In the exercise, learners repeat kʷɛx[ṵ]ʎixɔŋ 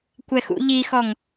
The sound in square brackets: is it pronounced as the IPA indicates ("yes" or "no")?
yes